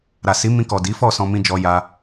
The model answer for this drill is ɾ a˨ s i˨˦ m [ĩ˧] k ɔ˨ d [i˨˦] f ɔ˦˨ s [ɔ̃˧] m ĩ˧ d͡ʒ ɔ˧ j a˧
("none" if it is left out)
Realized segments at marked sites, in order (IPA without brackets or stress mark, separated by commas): ĩ˧, i˨˦, ɔ̃˧